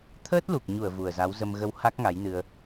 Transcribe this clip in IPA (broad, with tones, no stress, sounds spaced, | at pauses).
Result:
t̪ʰ əː˦˥ t̚ l u˨˩ k̚ ɲ u˧˩ ə̯ v u˨˩ ə̯ z a˨˦ w z ə˧ m ɣ ə˧ w h a˦˥ k̚ ŋ a˨˦ j n ɨ˧ ə̯